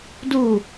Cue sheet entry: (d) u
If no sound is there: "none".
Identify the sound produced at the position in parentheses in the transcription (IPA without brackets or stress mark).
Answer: d